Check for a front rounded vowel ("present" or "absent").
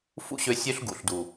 present